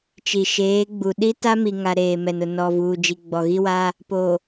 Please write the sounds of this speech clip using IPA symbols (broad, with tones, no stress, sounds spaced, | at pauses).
t͡ʃ i˨ ʃ eː˨˦ ɡ͡b u˨ ɗ i˦ t a˦ m i˨ ŋ a˨ ɾ eː˨ m ɛ˨ n ʊ˨ n ɔ˨ v uː˨ d͡ʒ i˨ ɡ͡b ɔ˨ ɣ i˦ w a˦ | p o˨